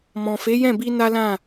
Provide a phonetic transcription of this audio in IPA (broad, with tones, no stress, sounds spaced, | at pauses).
m ɔ̃˨ f e˨˦ j ɛ̃˦˨ b i˧ n a˦ l ã˦˨